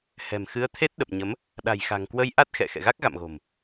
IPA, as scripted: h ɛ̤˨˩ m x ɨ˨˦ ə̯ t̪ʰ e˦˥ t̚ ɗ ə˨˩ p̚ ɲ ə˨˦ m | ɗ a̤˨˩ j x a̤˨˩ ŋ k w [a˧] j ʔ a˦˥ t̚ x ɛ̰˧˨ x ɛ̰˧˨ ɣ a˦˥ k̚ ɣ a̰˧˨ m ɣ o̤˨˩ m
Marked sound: incorrect: ə˧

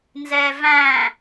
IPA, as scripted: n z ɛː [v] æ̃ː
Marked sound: correct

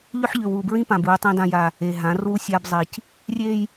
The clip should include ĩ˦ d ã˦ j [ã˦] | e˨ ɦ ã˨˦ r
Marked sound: incorrect: a˦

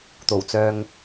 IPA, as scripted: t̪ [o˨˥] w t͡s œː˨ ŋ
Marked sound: incorrect: o˨˩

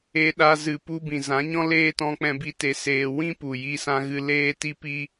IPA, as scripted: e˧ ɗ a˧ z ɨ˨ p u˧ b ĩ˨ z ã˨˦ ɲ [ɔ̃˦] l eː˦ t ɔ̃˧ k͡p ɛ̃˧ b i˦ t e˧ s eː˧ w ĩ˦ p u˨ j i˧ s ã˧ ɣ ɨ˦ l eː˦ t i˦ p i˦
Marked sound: correct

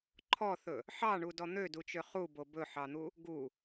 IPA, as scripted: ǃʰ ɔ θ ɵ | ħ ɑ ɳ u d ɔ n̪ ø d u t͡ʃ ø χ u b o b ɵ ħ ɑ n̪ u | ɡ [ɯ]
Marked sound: incorrect: u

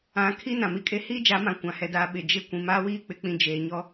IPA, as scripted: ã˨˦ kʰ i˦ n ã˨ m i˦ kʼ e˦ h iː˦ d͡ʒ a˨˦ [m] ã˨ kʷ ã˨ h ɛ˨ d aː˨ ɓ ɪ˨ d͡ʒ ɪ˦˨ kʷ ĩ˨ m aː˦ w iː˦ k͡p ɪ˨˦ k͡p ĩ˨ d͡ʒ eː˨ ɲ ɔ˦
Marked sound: correct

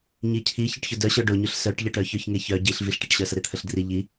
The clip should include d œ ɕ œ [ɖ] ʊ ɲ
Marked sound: correct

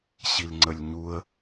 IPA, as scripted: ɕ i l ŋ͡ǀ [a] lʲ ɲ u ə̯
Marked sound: incorrect: ə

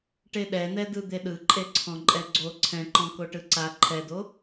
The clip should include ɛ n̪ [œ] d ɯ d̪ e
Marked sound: incorrect: ɛ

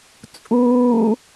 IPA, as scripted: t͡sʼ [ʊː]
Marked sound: incorrect: uː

